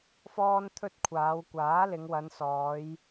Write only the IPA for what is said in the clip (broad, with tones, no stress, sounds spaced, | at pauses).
f ɔː˥ n t̪ʰ ɵ˥ t̚ kʷʰ aː˨˧ w kʷ aː˨˥ l ɪ˨˧ ŋ w ɐ˨˧ n s ɔː˨˧ j